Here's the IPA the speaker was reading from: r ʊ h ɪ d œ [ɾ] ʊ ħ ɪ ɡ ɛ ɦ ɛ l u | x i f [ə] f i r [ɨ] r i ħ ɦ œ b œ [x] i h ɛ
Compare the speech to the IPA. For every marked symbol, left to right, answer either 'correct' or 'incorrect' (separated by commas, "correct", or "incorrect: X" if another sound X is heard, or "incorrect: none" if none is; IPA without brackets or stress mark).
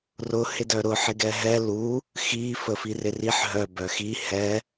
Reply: correct, correct, incorrect: ɪ, correct